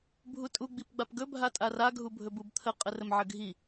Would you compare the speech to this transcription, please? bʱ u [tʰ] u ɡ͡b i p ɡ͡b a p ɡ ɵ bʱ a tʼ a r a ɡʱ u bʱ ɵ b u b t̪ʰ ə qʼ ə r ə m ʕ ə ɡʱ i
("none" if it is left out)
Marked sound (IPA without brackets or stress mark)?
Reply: tʼ